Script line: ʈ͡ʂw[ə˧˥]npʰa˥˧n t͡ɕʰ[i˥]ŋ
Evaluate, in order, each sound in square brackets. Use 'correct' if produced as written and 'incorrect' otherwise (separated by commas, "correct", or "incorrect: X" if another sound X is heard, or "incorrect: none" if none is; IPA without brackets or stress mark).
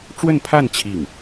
incorrect: ə˥˧, incorrect: i˥˩